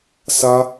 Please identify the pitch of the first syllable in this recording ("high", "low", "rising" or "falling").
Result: high